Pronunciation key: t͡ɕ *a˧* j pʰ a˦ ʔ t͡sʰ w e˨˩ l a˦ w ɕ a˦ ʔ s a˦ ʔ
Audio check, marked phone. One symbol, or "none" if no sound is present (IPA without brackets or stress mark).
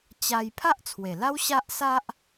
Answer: a˧